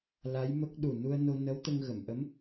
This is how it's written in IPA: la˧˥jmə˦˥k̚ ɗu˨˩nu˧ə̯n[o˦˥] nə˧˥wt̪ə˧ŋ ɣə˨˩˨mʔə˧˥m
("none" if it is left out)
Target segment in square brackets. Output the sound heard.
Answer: o˧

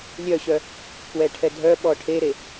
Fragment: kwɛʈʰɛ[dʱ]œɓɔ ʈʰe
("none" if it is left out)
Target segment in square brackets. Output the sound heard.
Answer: dʱ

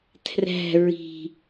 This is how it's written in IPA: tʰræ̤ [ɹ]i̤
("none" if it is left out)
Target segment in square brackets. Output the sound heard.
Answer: ɹ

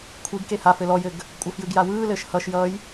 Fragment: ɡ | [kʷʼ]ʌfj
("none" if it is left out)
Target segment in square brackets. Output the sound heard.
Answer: kʷʼ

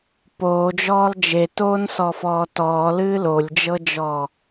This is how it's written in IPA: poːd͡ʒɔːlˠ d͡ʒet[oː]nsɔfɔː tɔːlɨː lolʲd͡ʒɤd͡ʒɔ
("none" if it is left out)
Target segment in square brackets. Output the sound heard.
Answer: oː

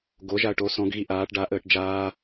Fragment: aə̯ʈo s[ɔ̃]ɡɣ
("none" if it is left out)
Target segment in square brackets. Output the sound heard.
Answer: ɔ̃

